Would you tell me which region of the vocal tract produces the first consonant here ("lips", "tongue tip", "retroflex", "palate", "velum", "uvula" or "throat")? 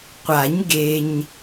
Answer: uvula